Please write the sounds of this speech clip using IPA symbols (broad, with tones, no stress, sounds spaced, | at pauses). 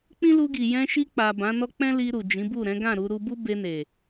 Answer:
k͡p ĩ˦ l u˧ ɡ i˨ j ɛ̃˧ ʃ i˧ k͡p a˨ b ã˨˦ n ɔ˦ k͡p ɛ̃˦ l i˧ ɾ u˨ d͡ʒ ĩ˨˦ b u˦˨ ɾ ɛ̃˨˦ ɡ ã˦˨ ɾ u˧ ɾ u˧ b u˦ b e˧ n e˨